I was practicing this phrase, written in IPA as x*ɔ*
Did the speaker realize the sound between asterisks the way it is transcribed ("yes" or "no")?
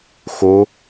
no